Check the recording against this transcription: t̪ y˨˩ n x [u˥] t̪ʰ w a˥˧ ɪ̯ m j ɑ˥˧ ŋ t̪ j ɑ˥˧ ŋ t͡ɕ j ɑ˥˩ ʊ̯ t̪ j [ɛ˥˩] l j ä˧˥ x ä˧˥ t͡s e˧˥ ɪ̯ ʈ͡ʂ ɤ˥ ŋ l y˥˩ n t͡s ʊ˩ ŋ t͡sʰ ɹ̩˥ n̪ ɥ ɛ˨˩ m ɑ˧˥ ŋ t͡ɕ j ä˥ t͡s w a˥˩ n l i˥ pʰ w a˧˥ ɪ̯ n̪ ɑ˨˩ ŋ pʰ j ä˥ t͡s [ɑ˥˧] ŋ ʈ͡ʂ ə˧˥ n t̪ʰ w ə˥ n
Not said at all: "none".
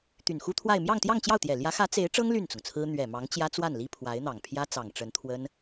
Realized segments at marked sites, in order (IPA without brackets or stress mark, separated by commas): u˥, ɛ˨˩, ɑ˨˩